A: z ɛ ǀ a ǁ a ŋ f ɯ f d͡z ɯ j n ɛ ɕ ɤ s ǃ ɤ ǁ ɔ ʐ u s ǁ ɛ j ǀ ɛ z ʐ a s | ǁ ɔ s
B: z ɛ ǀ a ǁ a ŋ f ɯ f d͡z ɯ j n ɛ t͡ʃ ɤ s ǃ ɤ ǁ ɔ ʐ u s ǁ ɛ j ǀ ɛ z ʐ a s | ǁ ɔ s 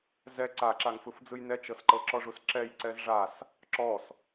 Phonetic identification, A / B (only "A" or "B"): B